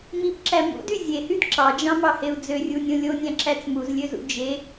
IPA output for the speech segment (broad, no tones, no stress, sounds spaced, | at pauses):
m i p ǁ æ m ṵ d y zʲ e h y d ǁ ɑ d͡ʒ ɑ̃ m ɑ h e u̯ d͡z ø rʲ u nʲ õ lʲ o nʲ æ̃ ǁ æ t͡s m u z lʲ ø z ṵ d͡ʒ e